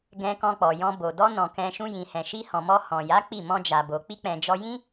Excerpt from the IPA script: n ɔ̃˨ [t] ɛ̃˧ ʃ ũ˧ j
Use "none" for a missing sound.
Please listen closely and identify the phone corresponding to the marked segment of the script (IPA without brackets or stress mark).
k